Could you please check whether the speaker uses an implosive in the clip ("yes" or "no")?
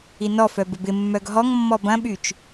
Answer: yes